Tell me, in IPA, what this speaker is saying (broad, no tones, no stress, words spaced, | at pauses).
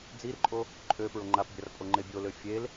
d͡zirǃʼo | ǃʼø pɹoŋ͡ǃapbʲar pʼoŋ͡ǃebʲolø fʲel